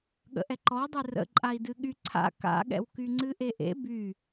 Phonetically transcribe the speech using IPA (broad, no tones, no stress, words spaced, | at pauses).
ɠə̰ʔɛǃɔdˤɨ rə̰ ǃʼai̯dɨɠy ǀʰa̰ ka̰ɠɛ̰wky ŋ͡ǀɨʔeʔḛ by